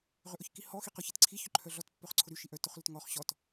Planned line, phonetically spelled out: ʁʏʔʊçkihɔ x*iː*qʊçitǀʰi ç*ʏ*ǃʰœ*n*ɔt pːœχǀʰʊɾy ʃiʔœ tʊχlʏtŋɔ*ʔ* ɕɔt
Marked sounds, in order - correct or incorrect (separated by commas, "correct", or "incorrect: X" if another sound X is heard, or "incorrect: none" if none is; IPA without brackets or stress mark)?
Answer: incorrect: i, correct, incorrect: ɮ, incorrect: χ